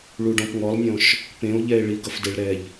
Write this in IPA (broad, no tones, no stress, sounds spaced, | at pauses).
ɭ u ɖ ɔ̃ p ŋ ɔ lˠ nʲ ɔ̃ ʃ | p ẽ o̯ ʎ ɛ e̯ ɭ i ɡ ʌ f d e ɭ ɾ ɛ ʎ